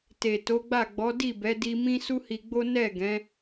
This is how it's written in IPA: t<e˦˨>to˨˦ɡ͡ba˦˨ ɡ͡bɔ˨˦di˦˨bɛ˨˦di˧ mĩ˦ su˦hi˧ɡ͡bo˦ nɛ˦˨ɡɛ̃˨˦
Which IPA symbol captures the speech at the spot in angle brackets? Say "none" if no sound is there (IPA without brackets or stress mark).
e˨